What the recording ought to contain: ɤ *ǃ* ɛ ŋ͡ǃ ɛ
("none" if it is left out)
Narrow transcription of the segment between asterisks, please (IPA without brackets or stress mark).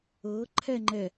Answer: ǃʰ